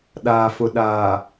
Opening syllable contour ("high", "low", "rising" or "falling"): low